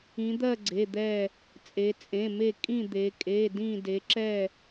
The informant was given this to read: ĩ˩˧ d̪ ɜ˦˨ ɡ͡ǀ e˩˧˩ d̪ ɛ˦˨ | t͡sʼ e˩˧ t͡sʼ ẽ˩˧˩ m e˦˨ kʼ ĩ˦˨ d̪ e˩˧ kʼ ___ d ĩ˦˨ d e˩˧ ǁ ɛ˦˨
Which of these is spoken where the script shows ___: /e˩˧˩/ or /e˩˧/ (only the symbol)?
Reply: e˩˧˩